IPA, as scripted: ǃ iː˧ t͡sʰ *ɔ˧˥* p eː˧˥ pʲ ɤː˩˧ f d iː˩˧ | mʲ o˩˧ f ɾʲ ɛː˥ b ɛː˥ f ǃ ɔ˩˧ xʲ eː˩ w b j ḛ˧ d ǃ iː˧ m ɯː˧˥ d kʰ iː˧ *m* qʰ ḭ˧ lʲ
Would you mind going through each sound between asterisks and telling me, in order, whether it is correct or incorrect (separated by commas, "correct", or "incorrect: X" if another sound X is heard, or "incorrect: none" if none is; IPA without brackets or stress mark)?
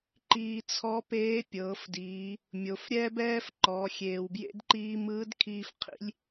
correct, incorrect: f